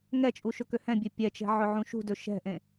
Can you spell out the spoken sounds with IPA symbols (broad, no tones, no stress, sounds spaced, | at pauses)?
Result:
ŋ ɛ t͡ʃʼ u ʃ ɵ k ø h ɛ̃ bʲ ø pʲ ɛ t͡ʃ ɛ̤ ʕ ɵ ʕ ũ ʃ ṳ d ɵ ʃ ɛ̤ ʔ ẽ